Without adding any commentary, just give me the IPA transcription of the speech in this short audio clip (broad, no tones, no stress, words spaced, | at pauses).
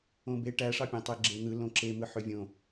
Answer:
õbe ʈæʂɑpʲæ̃ tˤeɡ͡ǁen̪ɯ lõǁemɯ ħøvʲõ